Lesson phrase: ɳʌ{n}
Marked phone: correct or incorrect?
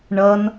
correct